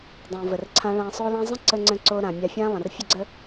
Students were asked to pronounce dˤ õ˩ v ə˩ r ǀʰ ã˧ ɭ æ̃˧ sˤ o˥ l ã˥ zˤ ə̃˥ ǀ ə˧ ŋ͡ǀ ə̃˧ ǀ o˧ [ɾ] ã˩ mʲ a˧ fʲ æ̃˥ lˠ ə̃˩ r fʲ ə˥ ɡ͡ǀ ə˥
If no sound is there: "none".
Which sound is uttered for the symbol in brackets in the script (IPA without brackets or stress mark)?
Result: ɾ